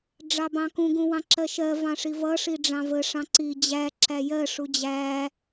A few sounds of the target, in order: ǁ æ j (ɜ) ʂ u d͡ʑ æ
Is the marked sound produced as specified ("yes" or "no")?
yes